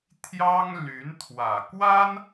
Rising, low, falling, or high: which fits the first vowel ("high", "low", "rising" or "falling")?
high